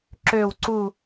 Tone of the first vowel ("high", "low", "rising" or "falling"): falling